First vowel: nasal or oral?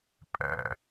oral